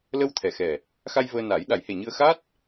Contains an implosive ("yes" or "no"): yes